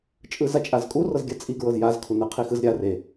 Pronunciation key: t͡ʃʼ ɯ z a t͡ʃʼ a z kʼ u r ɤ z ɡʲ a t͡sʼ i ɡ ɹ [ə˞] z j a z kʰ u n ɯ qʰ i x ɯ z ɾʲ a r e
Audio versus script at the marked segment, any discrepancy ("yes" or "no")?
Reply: yes